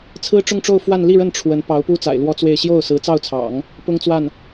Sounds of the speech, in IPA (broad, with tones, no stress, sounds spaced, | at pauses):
t͡sʰ ɹ̩˥ ʈ͡ʂ ʊ˥˧ ŋ ʈ͡ʂ o˥˧ ʊ̯ f w a˥˧ n l i˥˧ ɻ ə˥˩ n ʈ͡ʂʰ w ə˧˥ n p ɑ˧˥ ʊ̯ p u˥ t͡s a̰˨˩ ɪ̯ l w ɔ˥ t͡s w e˥˧ ɪ̯ ɕ j o˥˩ ʊ̯ s ɹ̩˧˥ t͡s ɑ˥˩ ʊ̯ t͡sʰ ɑ̰˨˩˦ ŋ | p ʊ˥ ŋ t͡s w a˥˩ n